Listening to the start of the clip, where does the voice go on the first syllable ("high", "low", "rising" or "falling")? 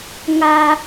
high